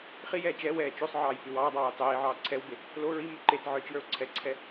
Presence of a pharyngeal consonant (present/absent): present